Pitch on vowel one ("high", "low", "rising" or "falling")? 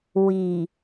low